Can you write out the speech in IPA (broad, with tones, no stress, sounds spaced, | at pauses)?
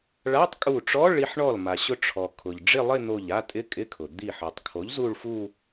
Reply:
ɭ a˧˥˧ tˤ kʼ u˧˩ ʈ͡ʂ ɔ˧˥˧ ɭ i˧ ħ ɳ ɔ˧˩ l m a˩ ɕ ʊ˧ ʈ͡ʂʰ ɔ˩ kʰ ʊ˩ ʎ ɖ͡ʐ ɪ˥˧ lˠ ɪ˥˧ n̪ o˧˩ ʎ a˥˧ tʼ ɪ˧˥˧ kʼ ɪ˧˥˧ kʰ ʊ˩ d̪ i˧˩ ħ ɔ˩ tˤ kʰ o˩˥ ʎ z u˥˧ ɭ f u˥˧